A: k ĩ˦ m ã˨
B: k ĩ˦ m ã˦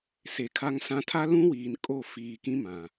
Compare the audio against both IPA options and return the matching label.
A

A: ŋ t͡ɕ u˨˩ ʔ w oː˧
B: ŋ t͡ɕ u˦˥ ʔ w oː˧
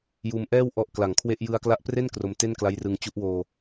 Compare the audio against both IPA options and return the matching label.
B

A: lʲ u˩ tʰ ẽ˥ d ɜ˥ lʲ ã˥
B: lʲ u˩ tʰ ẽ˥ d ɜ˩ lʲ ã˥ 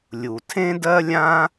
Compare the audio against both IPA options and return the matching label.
A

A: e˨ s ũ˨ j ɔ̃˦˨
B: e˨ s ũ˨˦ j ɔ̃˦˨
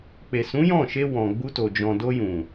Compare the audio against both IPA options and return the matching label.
B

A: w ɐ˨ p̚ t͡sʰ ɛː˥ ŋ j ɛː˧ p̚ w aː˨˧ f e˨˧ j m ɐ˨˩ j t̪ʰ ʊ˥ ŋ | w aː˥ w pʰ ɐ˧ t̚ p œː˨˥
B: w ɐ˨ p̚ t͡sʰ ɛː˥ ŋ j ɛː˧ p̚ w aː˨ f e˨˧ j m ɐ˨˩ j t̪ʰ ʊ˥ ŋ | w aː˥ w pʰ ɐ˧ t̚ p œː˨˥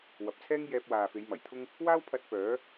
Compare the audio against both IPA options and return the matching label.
B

